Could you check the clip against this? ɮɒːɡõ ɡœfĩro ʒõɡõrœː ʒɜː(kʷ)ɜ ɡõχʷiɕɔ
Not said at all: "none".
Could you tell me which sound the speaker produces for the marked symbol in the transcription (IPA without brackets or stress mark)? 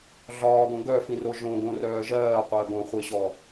qʷ